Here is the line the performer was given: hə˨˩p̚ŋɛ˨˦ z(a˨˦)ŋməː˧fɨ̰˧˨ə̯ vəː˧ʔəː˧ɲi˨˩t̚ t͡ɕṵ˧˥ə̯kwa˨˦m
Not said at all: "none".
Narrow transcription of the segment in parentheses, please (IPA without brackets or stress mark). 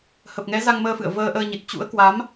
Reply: a˧